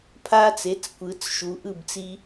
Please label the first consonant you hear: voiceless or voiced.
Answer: voiceless